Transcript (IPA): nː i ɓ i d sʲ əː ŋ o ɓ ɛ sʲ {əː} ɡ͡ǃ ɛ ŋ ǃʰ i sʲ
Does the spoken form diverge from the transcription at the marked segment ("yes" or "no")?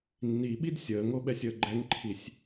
no